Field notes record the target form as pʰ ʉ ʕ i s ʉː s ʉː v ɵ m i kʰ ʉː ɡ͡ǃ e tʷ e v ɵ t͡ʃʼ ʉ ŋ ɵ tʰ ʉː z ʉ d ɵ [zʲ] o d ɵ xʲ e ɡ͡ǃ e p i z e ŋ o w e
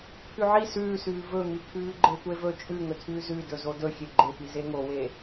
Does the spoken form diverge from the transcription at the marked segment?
yes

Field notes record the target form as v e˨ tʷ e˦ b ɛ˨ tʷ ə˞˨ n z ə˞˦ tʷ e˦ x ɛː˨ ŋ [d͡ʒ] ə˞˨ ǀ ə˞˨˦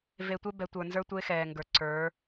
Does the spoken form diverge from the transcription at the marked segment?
yes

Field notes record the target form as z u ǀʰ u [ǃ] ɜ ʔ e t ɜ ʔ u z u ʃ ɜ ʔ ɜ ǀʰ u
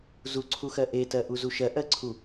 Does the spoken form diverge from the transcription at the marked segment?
yes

